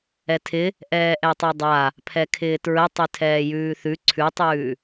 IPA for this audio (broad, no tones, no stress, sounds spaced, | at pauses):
ɛ tʰ ɪ | ʔ ɛː ʔ ɛ tˤ ɛ dˤ a | pʰ ɛ kʰ ɪː t ɹ ə tˤ ʉ tʰ ɛː j ʉː θ ʉ ǀʰ ʉ tˤ ʉː